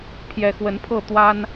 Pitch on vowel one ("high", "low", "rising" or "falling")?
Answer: rising